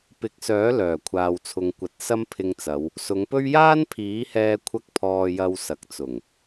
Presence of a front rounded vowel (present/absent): present